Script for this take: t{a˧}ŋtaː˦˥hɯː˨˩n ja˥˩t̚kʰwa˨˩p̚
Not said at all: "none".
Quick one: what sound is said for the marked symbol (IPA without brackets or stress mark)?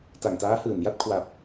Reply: a˨˩